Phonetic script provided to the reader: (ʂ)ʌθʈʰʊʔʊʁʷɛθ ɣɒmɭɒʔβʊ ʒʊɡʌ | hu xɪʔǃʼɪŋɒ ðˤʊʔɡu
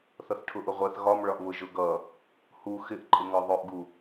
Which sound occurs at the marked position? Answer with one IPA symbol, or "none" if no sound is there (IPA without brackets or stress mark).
θ